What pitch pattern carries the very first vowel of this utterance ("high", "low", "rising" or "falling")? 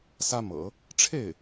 high